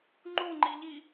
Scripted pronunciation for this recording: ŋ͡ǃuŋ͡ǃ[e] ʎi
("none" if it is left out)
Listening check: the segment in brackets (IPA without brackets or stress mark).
i